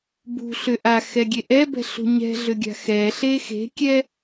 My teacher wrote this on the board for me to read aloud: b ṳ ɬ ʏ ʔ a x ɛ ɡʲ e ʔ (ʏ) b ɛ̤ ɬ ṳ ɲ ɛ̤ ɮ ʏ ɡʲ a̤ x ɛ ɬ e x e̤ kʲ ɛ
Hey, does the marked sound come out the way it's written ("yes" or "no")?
no